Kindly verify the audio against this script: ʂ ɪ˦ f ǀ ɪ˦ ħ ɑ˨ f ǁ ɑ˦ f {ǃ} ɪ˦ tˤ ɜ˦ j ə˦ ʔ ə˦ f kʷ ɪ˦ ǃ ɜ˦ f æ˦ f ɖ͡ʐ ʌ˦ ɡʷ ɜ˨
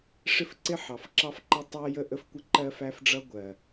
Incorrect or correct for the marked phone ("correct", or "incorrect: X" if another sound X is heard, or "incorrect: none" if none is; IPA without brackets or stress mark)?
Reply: correct